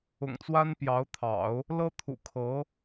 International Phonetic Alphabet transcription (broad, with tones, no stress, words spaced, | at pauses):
ʊ̰˨˩ŋt͡swa˥n pjɑ˧˥ʊ̯t̪ʰɑ̰˨˩˦ʊ̯ | lɤ˥t̪ʰṵ˨˩kʰɤ˧˥